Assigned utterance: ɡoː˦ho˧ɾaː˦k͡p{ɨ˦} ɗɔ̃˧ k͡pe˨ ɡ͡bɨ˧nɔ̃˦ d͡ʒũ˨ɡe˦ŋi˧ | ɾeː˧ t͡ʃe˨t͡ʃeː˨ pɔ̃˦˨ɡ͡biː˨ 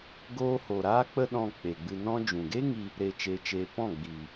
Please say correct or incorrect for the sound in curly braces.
incorrect